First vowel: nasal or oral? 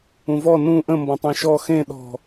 nasal